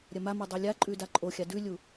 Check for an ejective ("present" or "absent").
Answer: present